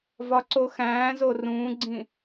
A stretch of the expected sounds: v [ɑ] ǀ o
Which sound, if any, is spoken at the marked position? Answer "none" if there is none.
ɒ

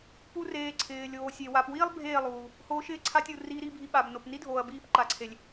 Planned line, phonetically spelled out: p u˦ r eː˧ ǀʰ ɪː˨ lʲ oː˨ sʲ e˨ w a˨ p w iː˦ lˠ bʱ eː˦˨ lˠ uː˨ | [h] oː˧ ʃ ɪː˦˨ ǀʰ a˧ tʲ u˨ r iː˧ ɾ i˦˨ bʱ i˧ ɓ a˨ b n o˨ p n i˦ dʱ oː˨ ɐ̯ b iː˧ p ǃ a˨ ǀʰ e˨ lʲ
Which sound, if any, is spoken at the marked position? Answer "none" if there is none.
h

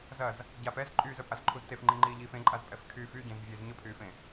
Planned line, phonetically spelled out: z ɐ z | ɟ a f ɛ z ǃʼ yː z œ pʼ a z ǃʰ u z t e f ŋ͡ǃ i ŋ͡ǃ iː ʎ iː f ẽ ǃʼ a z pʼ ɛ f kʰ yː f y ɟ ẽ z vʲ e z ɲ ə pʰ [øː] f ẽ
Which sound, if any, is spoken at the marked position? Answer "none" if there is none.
yː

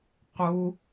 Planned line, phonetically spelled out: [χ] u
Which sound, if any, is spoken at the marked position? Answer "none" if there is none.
q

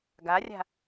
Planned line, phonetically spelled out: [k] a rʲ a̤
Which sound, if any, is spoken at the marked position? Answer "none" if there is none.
ɡ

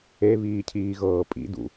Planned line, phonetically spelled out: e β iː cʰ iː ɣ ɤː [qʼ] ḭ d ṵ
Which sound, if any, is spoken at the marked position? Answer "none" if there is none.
pʼ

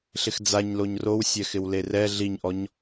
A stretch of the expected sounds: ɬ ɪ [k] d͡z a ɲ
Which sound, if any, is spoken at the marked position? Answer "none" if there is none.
x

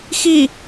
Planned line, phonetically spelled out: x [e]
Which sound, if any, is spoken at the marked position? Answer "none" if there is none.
i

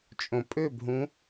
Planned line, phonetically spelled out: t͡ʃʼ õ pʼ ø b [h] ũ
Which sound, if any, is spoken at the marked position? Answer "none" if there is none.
ɦ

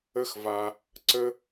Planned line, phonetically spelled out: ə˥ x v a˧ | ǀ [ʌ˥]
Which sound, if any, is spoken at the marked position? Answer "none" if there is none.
ə˥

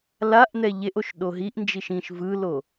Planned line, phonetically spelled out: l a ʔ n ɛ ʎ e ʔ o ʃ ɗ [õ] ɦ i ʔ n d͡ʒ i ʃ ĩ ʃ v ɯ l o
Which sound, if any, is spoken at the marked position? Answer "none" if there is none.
o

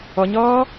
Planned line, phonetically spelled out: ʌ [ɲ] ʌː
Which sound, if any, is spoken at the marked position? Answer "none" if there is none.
ɲ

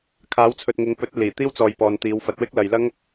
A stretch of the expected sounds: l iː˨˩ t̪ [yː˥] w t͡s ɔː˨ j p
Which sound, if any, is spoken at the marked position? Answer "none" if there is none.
iː˥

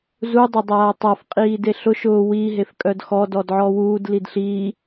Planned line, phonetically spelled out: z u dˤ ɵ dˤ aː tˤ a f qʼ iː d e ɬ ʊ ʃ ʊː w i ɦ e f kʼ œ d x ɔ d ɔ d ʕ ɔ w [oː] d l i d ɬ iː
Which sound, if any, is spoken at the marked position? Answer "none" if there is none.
uː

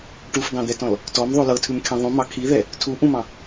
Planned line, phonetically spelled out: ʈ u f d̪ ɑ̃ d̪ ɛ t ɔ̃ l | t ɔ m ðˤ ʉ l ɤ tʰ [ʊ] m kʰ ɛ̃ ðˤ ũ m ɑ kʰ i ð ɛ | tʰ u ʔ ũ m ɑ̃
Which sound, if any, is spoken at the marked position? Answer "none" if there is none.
ʉ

